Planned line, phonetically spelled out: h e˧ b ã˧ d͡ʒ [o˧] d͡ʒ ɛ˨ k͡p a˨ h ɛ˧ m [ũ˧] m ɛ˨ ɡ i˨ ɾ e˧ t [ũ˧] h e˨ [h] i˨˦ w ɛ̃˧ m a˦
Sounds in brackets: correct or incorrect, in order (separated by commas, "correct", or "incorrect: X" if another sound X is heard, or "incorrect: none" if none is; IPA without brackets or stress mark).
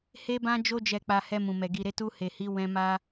correct, incorrect: ũ˨, incorrect: u˧, correct